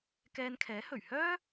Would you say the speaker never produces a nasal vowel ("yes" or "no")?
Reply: yes